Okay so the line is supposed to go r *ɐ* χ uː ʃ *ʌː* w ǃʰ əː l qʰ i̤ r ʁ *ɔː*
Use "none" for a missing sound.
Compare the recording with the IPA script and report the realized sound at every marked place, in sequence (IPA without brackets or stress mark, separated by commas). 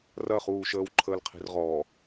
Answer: ɐ, əː, ɔː